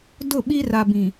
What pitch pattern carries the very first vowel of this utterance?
falling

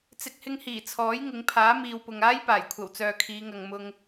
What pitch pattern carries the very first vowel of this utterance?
low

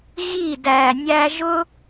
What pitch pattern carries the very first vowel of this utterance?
falling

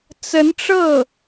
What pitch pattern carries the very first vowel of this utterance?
rising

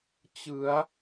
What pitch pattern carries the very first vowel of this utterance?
rising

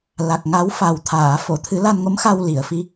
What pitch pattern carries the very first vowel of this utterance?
low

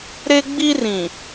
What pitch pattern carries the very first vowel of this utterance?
high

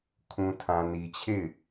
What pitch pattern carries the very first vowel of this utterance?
low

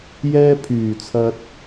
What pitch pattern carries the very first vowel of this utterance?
high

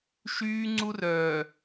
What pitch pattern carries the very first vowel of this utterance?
high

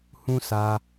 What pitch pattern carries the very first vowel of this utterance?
high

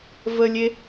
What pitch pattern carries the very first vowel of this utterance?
high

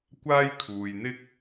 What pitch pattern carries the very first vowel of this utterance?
high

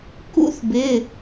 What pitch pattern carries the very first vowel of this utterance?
high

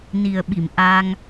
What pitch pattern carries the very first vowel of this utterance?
low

